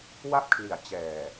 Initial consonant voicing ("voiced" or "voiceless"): voiced